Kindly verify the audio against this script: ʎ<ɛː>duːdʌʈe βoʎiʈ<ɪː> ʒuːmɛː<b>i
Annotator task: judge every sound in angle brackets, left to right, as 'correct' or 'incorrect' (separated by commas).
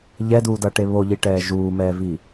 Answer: incorrect, incorrect, incorrect